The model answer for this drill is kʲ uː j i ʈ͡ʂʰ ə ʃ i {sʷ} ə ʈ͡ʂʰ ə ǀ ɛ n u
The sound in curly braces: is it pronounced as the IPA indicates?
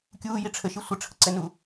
yes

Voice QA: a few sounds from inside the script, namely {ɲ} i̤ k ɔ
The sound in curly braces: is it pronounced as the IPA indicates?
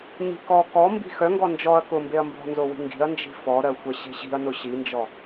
yes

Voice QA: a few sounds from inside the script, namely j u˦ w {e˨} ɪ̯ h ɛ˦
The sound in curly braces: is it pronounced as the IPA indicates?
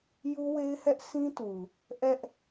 no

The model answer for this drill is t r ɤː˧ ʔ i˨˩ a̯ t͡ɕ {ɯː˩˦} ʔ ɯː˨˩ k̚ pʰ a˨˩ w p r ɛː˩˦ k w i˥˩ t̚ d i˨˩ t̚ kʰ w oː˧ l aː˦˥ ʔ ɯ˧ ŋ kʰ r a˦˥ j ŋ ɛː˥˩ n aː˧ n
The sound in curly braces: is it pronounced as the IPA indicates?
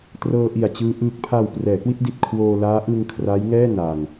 no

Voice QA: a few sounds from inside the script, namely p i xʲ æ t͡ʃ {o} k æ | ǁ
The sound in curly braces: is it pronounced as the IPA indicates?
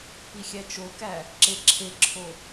yes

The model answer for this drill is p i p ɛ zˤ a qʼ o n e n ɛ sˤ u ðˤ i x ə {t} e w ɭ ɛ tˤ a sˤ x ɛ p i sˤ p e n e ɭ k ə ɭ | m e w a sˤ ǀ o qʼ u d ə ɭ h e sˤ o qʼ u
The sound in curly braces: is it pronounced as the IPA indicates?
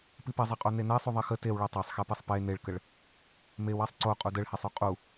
yes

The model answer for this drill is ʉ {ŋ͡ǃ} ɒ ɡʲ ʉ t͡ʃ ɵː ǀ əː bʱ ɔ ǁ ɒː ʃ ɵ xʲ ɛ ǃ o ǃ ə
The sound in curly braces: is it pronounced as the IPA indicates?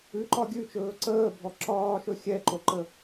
no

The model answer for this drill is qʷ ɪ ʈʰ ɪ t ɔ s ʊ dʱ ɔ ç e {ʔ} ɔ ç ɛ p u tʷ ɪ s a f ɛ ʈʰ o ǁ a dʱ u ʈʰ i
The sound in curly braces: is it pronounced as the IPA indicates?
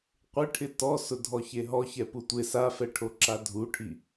no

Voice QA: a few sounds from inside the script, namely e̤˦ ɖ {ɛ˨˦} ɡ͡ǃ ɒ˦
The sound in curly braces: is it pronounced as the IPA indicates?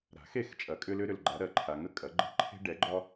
yes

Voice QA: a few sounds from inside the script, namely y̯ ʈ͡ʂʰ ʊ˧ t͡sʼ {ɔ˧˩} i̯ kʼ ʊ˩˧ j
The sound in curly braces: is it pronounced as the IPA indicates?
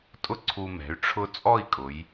no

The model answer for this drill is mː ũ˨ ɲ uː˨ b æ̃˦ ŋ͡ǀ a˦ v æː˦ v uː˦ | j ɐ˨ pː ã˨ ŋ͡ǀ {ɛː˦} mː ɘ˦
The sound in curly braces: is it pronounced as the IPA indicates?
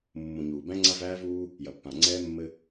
yes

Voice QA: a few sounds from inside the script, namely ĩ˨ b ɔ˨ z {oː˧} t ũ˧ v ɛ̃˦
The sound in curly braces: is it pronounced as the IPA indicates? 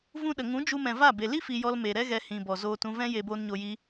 yes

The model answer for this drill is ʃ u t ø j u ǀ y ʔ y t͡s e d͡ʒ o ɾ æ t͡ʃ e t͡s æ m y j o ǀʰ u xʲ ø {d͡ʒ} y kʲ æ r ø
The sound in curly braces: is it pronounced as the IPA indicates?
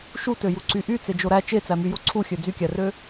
no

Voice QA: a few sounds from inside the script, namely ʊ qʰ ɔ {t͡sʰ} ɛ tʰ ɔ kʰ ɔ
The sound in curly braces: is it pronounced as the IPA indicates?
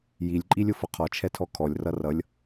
no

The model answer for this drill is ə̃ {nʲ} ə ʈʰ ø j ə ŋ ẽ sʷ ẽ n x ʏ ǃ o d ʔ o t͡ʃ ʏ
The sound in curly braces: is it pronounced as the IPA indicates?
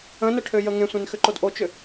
no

